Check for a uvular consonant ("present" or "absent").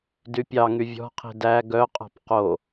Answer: present